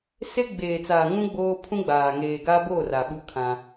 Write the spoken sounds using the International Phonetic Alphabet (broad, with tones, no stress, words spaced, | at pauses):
se˦ ɡ͡beː˨t͡saː˨ŋũ˦ ɡ͡boː˦ pʰũ˦ɡ͡baː˨ ŋeː˨ɡaː˦boː˦˨ ra˨ɓu˦kʰã˦